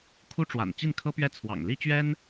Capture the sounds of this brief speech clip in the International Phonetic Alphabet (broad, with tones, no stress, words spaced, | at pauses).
kʰu˥ʈ͡ʂwa̰˨˩n t͡ɕi˥˩nkʰɤ˥pɥɛ˥˩ t͡sʰwɑ̰˨˩ŋli˥t͡ɕɥɛ˥n